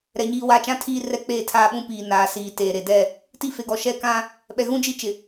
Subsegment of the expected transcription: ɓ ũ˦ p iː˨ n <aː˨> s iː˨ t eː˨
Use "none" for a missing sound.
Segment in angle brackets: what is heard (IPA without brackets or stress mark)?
aː˨